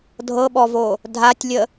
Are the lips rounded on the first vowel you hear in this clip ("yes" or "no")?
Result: no